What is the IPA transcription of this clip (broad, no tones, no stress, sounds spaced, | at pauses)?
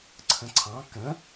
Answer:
ǀʰ ə̃ ǀʰ ɑ̃ k ə̃